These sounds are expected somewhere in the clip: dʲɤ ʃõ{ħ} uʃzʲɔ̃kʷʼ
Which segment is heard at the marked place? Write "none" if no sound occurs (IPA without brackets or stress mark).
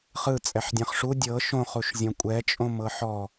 χ